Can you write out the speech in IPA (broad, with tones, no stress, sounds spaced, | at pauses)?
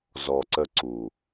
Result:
z ɔ˨ ǀ ə˧ ǀ u˨